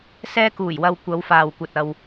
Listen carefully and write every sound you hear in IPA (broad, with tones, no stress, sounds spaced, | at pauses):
s ɛː˧ k uː˨˩ j w ɐ˨ w kʷ ɐ˨˧ w f aː˨ w kʷ ɐ˨ t̚ ɐ˨ w